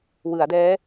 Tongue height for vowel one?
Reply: high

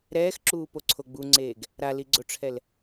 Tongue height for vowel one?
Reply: mid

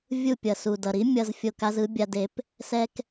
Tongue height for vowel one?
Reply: high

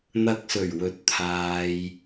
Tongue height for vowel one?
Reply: low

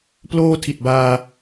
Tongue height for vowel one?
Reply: mid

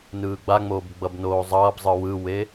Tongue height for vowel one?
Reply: high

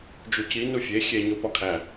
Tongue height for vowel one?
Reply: high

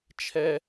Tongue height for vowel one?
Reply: mid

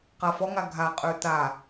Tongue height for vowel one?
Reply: low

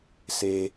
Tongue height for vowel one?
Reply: mid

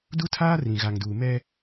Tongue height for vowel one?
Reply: high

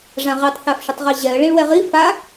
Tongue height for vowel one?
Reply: low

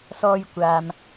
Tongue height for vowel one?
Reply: mid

